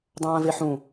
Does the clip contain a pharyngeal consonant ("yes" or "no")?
yes